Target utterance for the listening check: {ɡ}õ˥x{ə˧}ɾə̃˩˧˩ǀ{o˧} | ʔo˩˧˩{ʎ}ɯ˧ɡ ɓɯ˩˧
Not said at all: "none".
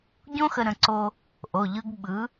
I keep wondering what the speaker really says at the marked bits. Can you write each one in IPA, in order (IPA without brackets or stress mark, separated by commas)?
ɟ, ə˧, o˧, ʎ